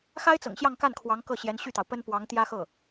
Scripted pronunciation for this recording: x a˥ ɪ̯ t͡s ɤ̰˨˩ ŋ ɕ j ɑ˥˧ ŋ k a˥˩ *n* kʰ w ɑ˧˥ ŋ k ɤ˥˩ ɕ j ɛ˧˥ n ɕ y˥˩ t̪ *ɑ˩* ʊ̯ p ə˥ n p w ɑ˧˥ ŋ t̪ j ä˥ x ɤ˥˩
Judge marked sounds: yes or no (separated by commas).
yes, yes